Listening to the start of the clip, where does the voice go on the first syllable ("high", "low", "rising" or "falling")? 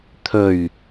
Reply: low